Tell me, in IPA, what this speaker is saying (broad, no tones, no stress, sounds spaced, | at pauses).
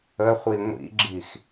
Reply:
ə χʷ i ŋʷ ḭ ɡ͡ǁ i x